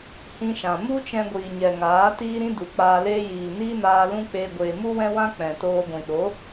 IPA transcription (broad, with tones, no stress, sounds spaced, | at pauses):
h ĩ˧ ʃ ã˨ m u˦ t͡ʃ ɛ̃˧ ɡʷ iː˨ ɲ ɛ˨ ŋ aː˨˦ t iː˦ ɾ ĩ˦ d u˨ k͡p aː˧ l eː˦ j iː˨ n iː˦ n aː˧ l ũ˦ k͡p eː˧ ɡʷ eː˨ m u˦ w ɛ̃˦ w ã˦ k͡p ɛ̃˨ t oː˧ ɡʷ ĩ˨ ɗ o˨˦